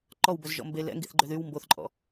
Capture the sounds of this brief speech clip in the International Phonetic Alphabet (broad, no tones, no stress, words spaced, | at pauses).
ǃɔwbɵzʒɔ̰ mbe lɛ̰ŋɡiθɡ͡ǃø ðyw mboθǃʼɔ̰